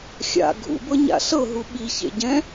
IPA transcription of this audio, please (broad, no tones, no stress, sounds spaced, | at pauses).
xʲ a̰ ɡʱ ṵ b ɤ ɲ a̰ ɬ ɤ ɦ u ɓ i ç ḛ ɟ ɛ̃